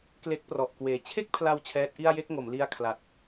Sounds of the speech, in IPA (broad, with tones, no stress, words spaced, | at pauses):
kle˦˥k̚prɔ˨˩ʔkweː˨˩ t͡ɕʰe˥˩k̚pʰla˧w t͡ɕʰɛː˦˥t̚ʔi˥˩a̯ je˥˩k̚ŋo˩˦m li˦˥a̯kʰla˨˩t̚